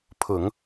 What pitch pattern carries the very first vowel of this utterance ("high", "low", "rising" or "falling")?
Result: low